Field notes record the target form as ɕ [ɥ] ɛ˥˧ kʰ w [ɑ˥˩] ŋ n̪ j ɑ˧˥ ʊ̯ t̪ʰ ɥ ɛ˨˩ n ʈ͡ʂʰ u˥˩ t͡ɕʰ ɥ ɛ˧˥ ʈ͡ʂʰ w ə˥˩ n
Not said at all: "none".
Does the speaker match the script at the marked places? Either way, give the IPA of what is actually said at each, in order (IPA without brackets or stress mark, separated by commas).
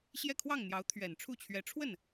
j, ɑ˥˩